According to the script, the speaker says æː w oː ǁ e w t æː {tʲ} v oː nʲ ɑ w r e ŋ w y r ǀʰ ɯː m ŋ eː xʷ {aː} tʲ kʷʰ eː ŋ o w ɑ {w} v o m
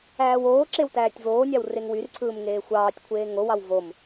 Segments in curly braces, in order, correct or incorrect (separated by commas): correct, incorrect, correct